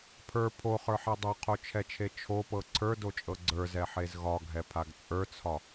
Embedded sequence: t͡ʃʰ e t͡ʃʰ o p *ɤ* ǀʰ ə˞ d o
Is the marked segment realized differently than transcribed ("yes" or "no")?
no